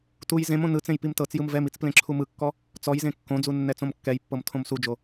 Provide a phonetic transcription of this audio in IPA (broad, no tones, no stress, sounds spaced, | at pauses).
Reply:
t u j z ẽ m õ n ɯ t͡s ẽ j p i m t ɤ t͡s j ɯ m v ɛ m i t͡s p l ẽ ǁʰ u m ɯ kː ɔ | t͡s ɔ j z ẽ kː õ d͡z u nː ɛ t͡s õ m kː ɛ j pː ɤ m tʰ õ m s u d͡ʒ o